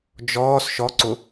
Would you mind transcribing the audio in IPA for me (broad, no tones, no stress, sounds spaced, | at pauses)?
d͡ʒ ɔː s ʃ ɔ ǀ ʊ